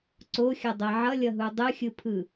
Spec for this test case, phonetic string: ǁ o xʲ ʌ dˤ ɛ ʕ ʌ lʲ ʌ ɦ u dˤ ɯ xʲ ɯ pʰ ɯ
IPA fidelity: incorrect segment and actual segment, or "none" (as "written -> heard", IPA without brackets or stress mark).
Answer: ǁ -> ǀ